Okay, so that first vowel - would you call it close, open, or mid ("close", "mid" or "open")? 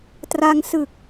open